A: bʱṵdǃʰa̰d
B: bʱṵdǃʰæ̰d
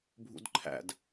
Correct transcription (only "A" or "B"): B